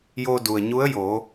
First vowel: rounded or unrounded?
rounded